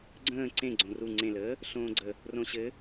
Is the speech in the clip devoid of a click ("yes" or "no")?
no